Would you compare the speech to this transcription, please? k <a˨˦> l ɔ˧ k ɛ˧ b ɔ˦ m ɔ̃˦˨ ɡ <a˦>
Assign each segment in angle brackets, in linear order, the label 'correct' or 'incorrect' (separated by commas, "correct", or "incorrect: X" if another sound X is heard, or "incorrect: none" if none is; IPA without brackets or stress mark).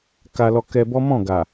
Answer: incorrect: a˧, incorrect: a˨